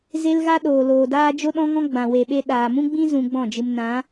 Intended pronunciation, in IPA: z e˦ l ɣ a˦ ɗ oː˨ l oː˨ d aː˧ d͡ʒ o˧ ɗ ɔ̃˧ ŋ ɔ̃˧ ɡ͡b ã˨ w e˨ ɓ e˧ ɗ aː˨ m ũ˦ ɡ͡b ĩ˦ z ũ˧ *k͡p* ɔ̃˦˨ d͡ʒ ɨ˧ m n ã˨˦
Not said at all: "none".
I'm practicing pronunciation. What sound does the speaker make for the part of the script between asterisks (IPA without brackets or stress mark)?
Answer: ɡ͡b